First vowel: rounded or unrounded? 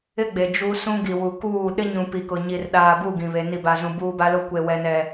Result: unrounded